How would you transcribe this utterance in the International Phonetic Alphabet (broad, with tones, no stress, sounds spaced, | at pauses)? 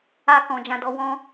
a˦ k ɔ̃˧ d͡ʒ ã˦ d ɔ˦ w ɔ̃˦